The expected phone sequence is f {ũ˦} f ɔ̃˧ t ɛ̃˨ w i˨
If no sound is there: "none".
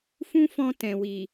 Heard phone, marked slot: ũ˦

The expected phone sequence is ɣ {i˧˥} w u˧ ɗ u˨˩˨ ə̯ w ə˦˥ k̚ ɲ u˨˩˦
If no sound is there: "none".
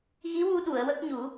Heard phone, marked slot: i˧˥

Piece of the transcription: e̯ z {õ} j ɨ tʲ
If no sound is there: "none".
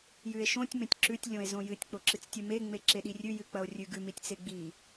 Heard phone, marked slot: õ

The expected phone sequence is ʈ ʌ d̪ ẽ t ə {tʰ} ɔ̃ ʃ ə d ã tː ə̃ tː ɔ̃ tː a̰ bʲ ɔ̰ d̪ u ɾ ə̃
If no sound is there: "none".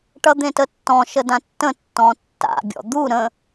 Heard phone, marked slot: tː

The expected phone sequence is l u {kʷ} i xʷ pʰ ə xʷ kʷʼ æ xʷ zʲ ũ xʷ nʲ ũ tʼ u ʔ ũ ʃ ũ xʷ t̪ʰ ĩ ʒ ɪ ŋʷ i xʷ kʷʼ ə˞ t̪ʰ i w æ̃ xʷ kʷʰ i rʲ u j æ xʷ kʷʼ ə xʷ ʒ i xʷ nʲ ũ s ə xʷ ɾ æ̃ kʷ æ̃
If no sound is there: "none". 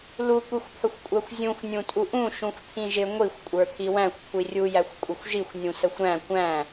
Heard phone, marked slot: kʷ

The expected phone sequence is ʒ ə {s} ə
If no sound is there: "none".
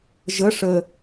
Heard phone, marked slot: ʂ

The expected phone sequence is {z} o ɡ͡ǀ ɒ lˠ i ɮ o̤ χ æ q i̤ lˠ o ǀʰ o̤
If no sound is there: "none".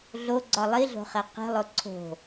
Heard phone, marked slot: ɮ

